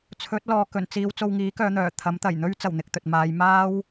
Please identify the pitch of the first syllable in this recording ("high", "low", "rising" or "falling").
rising